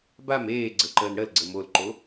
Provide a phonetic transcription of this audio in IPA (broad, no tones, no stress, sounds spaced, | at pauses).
b a m eː ɡ͡ǀ ə ǃ əː n ɽ ə l ɡ͡ǀ ə m o l ǃ o